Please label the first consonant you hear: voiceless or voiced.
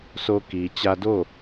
voiceless